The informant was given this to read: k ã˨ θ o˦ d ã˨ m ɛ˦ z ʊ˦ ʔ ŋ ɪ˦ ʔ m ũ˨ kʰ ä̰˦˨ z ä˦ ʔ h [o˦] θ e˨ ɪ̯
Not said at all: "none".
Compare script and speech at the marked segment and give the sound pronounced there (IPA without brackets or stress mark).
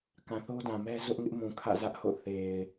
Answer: o̰˦˨